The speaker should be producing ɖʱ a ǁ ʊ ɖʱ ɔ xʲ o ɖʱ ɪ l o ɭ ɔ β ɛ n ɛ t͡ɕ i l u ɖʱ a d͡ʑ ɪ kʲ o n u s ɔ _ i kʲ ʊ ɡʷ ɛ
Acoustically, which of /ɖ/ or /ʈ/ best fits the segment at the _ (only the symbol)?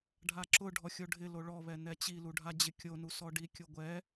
ɖ